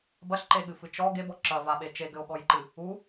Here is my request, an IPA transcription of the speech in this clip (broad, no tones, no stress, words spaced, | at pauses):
bɐɬǃeɠɨfɨ t͡ʃɔ ɡebɔ ǁɐvaɓe t͡ʃeɡɘo̯ɠɔjǃɨ | u